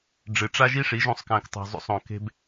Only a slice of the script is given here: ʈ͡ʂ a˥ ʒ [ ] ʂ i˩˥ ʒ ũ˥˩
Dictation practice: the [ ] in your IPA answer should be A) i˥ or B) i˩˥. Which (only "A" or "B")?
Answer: A